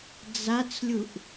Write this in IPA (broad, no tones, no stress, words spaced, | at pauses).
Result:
d͡zat͡slʲuʔ